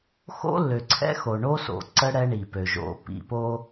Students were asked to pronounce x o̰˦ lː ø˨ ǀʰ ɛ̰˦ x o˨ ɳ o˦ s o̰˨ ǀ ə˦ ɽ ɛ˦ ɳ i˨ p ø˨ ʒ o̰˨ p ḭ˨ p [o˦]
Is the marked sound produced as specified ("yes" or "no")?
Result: yes